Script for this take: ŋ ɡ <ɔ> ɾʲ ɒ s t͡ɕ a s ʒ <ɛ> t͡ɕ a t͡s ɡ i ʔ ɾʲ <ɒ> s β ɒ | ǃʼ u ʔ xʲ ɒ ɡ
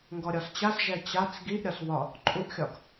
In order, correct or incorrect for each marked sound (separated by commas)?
correct, correct, correct